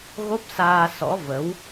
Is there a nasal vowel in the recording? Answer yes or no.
no